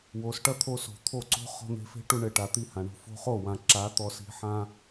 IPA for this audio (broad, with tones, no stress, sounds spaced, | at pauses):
w o˨ s ʈ ɐ˦ t̪ʰ o˧ s o̤˨ t̪ʰ o˦˨ ǀ o̤˦ χ ɔ̤˧ n̪ e̤˧ f e̤˦ ʈ u˧ ɳ ɘ˨ ʈ a˨ t̪ i˦˨ h ã˨ ɳ o̤˧ f o̤˧ χ o˦˨ w ã˨ ǁ a˨˦ t̪ ɔ˧ s i̤˧ ħ ã˦